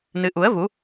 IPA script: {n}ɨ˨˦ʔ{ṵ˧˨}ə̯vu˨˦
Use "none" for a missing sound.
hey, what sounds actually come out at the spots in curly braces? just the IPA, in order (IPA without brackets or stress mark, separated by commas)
n, u˨˦